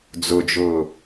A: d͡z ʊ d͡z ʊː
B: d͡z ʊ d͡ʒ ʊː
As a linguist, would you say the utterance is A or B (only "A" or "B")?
B